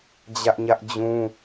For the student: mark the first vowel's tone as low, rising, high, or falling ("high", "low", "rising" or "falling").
high